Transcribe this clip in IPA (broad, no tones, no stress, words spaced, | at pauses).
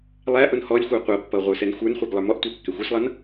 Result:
lˠæ ʔʊnhɔlʲxʷə˞ qʷʌpːʌ ʁʷə˞sɛnxʷə˞nχʷɛɡ lˠə˞mɔʔtʷə˞ kːɛxʷə˞slˠʌn